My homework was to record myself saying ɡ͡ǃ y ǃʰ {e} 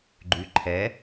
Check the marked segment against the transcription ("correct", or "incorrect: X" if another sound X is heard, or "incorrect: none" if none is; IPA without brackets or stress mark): incorrect: ɛ